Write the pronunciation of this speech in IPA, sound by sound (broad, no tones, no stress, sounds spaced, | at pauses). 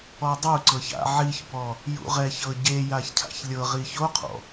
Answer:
ɔ dˤ u ǀ ɤ ç a̰ ʕ i ç b ɔ | j ṵ ʁ ɛ ç ɤ ɟ e j a ç cʰ a̰ ç lʲ ɤ ʁ i ç o qʰ ɔ̰